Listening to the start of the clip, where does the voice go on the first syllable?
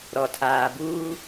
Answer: low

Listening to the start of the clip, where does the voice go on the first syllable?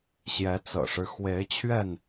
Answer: rising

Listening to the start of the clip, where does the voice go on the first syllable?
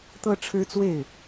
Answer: high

